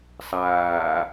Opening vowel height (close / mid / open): open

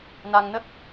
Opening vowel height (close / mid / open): open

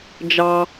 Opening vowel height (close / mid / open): open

